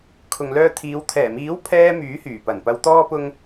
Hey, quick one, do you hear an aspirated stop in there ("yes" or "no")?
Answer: yes